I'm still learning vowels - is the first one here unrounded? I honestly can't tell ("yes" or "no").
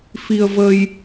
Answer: yes